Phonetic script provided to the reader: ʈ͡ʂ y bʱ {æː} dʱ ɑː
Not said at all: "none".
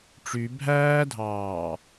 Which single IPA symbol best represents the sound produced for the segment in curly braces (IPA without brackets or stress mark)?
æː